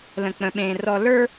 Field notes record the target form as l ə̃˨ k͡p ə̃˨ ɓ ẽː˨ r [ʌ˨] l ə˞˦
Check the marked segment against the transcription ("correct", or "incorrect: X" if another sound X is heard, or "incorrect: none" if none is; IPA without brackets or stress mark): incorrect: ɔ˨